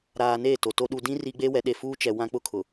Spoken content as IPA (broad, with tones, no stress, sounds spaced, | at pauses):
ɾ aː˨ n eː˦˨ t o˨ t o˦ ɗ u˨ d ĩ˦ r i˦ ɡ͡b eː˦ w ɛ˨˦ ɗ e˨ f uː˦ t͡ʃ ɛ˨ w ã˦ k͡p ʊ˦˨ kʰ ʊ˨